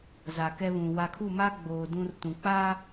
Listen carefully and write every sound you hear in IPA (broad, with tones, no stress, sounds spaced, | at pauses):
z a˨ k ɛ˦ β ũ˨ w a˨ kʰ u˦˨ m a˦ ɡ͡b oː˨ d ũ˦ r t ũ˨ k͡p a˦